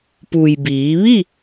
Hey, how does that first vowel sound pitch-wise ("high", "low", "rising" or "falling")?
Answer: low